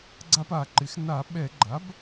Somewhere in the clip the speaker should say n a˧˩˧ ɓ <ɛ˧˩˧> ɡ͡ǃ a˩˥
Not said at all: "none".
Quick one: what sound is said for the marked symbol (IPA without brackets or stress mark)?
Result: ɛ˧˩˧